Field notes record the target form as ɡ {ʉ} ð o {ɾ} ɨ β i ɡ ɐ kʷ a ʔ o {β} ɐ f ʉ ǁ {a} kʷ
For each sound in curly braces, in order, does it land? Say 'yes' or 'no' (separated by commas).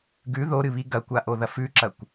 yes, yes, no, no